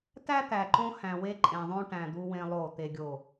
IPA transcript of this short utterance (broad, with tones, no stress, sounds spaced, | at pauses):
t æ˦ t̪ æ˨ ǃ õ˦ h æ̃˨ w e˦ ǃʼ ẽ˨ ðˤ õ˦ ʈ æ̃˨ d̪ u˦ w ẽ˦ lˠ o˦˨ t̪ e˦ ɡʲ o˦˨